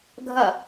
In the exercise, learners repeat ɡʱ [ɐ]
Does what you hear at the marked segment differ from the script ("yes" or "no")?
no